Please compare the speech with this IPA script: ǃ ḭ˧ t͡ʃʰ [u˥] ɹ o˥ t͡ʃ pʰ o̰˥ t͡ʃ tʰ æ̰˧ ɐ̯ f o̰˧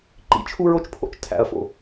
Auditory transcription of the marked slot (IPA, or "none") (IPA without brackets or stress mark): u˥